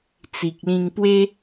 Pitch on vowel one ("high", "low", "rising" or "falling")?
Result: low